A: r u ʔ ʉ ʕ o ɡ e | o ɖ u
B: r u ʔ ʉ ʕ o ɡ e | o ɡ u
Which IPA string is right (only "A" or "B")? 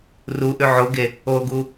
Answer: B